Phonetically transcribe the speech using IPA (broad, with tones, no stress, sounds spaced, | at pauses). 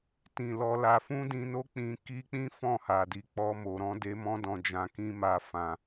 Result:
t ĩ˨ l ɔ˧ l a˧ f ũ˦ d ĩ˧ n o˦ k͡p ĩ˧ k i˦ k͡p ĩ˦ f ɔ̃˦˨ h a˨ d i˨˦ k͡p ɔ˦ m o˧ ɾ ɔ̃˦ d e˦ m ɔ̃˦ d ɔ̃˧ d͡ʒ ã˧ k ĩ˦ m a˧ f ã˧